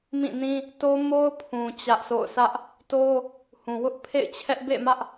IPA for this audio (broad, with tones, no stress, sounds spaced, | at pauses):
m ĩ˦˨ n ĩ˦ | t o˦ m o˦ ʊ̯ pʰ ũ˨ t͡ɕ ä˦ ʔ s o̰˦˨ ʊ̯ s ä˦ ʔ | t o˦ | h ũ˨ w ʊ˦ ʔ pʰ ḛ˦˨ ɪ̯ t͡ɕʰ ɛ˦ ʔ b ḛ˦˨ m ä˦ ʔ